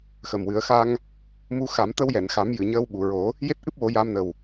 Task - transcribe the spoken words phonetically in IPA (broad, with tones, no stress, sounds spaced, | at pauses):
x ə˨˩ m w ɨ˨˩˦ ə̯ x a˧ ŋ | m u˧ x a˨˩˦ m t̪ ə˧ w j ɛ˨˩˨ n x a˨˩˦ m j ɨ˨˩˨ ɲ əː˧ w ɓ u˨˩˨ ɹ o˨˩˦ | j e˦˥ t̚ ʔ ɨ˦˥ p̚ w o˨˩˦ j a˧ m n ə˨˩ w